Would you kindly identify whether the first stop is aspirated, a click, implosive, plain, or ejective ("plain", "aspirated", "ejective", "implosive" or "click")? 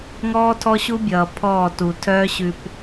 aspirated